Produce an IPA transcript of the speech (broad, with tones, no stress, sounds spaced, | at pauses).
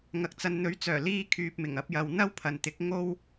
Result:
ŋ ɐ˨ k̚ t͡s ɐ˨ n n̪ ɵ˨˥ ɥ t͡s œː˨˩ l iː˧ kʰ yː˨ p̚ m ɪ˨˩ ŋ ɐ˧ p̚ j ɐ˨ w n̪ ɐ˥ w pʰ ɐ˨ n t̪ ɪ˨˥ k̚ ŋ o˥ w